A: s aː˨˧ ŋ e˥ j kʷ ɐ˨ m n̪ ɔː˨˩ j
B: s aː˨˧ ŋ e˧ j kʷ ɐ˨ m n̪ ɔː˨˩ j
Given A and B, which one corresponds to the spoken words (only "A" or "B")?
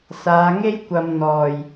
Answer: A